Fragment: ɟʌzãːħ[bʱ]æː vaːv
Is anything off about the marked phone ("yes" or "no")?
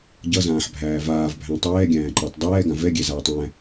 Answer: no